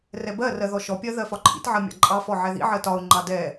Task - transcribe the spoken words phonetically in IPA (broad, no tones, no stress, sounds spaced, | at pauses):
r ɛ b ɜ r ɜ ð ɔ ʃ ɔ pʲ ɜ ð ɜ f ɒ ǃʰ ḭ t ʕ ɜ mʲ ɑ̰ ǃʼ ɑ f ɔ ʕ ɛ ð ḭ ʕ ɜ t ɒ ʊ̯ ŋ͡ǃ ɑ d ɛ